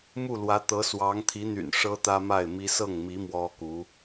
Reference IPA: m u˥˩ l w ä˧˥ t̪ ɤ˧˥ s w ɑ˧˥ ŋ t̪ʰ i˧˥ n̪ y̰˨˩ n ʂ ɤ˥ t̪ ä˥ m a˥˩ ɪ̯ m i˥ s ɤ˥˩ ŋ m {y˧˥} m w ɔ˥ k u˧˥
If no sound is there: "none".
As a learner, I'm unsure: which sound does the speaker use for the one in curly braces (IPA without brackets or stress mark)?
i˧˥